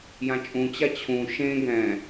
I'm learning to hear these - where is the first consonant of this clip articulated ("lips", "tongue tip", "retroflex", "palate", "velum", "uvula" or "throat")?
palate